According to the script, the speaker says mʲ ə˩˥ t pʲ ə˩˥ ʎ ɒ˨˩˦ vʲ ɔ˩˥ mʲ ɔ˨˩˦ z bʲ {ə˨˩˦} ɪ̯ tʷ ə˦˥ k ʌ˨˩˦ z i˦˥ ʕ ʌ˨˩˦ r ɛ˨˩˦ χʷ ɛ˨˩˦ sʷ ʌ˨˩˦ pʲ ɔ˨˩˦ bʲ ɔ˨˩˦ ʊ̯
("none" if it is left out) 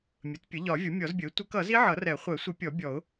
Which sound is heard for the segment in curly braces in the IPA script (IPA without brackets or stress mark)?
ə˩˥